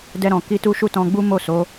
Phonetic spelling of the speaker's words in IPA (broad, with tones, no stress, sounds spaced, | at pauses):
d ɛ˧ ɾ ɔ̃˨ k i˧ t u˦ ʃ u˦˨ t ɔ̃˧ ɡ͡b u˦ m o˦˨ s o˨˦